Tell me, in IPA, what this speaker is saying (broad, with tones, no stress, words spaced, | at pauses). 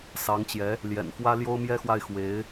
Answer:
sɑ˧˥ŋt͡ɕjɛ˧˥ | ljɛ̰˨˩nfwä˥ ljo˥ʊ̯mjɛ˥xwa˥˩ɪ̯ xwe˧˥ɪ̯